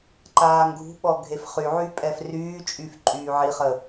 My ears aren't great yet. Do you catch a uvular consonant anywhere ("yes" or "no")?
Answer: yes